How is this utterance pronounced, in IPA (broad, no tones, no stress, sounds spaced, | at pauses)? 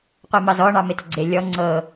qʷ e m ɑ z ɔ ɳ ɑ m e t ə ɡ͡ǀ e lʲ ɔ ŋ͡ǀ ɤ